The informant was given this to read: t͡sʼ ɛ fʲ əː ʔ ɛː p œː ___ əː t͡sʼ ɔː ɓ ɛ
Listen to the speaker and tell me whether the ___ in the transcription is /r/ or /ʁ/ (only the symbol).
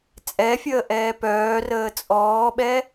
r